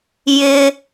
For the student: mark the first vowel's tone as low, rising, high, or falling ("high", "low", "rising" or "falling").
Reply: high